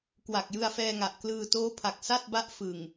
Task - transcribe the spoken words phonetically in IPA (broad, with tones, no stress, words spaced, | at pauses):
kwa˨˩k̚jɯ˧a̯fɛː˧ŋa˨˩ʔ klɯː˧toː˦˥pʰa˨˩k̚ sa˥˩t̚ba˦˥ʔ fɯ˨˩ŋ